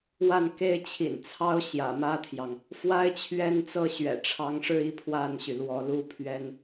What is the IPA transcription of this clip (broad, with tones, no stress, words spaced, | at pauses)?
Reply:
wa˥˩nke˥ɪ̯ t͡ɕʰḭ˨˩nt͡sʰɑ˥ʊ̯ ɕjä̰˨˩mä˥t̪ʰjɑ˨ŋ | fwa˥ɪ̯t͡ɕʰɥɛ˥nt͡sɤ˥˩ ɕɥɛ̰˨˩ʈ͡ʂʰɑ˧˥ŋʂɻ̩˥˧i˥˧ pʰwa˥˩nɕy˩ lwɔ˧˥lu˥pʰɥɛ˥n